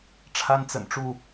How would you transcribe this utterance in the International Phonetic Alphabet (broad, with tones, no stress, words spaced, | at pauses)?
ʈ͡ʂʰa˦nt͡sə̰˨˩nʈ͡ʂu˥˨